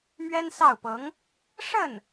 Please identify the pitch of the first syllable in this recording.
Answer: high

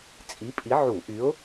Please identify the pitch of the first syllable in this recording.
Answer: rising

